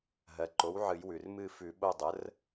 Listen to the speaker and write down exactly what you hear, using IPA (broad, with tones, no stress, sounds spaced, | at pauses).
ɦ ɜ˩ ǃ o˩˥ w ʕ ɨ˨˩˦ j w ʉ˩ r m ɨ˦˨ f ʉ˨˩˦ ɓ o˦˨ dˤ ə˩˥ r